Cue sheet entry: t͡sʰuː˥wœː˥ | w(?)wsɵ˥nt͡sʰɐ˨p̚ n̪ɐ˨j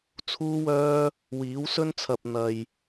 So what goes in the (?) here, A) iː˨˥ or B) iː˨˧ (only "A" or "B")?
A